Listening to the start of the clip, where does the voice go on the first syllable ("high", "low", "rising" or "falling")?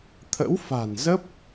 rising